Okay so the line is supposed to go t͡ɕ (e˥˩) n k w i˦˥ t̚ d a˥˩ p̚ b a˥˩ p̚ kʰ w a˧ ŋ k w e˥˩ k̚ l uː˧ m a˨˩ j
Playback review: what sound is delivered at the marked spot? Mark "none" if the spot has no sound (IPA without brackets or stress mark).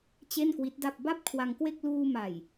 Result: e˥˩